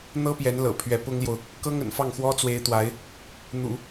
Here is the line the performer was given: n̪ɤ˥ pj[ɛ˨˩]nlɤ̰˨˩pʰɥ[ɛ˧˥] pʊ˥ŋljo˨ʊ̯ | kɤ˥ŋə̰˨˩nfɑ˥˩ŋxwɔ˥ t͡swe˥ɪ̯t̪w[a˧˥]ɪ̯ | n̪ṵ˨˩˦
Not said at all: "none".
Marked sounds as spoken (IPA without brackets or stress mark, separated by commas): ɛ˧˥, ɛ˧˥, a˧˥